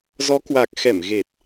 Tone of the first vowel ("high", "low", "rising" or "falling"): rising